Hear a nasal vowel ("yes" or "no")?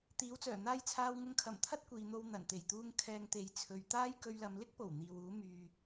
no